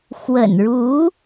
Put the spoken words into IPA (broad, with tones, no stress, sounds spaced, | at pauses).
x w ə̰˨˩ n ɻ u˧˥